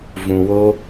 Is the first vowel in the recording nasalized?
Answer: yes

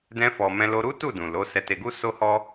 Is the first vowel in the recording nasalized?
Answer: yes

